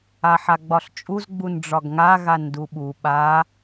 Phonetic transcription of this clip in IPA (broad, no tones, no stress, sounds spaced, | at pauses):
a ħ a ɡ͡b ɒ ɬ t͡ʃʼ u z ɡ͡b u n ɖ͡ʐ ɒ ɡ ŋ a ɣ a n d u ɓ u ɓ a